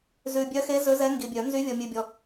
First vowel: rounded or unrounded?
rounded